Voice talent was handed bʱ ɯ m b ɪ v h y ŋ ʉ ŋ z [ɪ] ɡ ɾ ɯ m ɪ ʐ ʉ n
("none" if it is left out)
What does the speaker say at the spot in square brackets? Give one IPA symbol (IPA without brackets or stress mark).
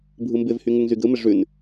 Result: y